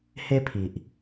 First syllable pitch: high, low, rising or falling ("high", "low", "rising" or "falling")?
high